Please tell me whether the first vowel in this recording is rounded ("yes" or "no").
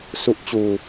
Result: yes